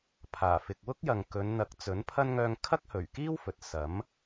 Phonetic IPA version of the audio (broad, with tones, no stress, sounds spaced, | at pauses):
pʰ aː˨˩ f ɪ˨ k̚ w ʊ˥ k̚ j ɐ˨ ŋ k ɵ˨˧ n n̪ ɐ˨˥ k̚ t͡s ɵ˨˥ n pʰ ɐ˥ n ŋ œː˧ ŋ kʰ ɐ˥ k̚ h ɵ˨˩ ɥ k iː˥ w f ɵ˨ t̚ s ɐ˨˥ m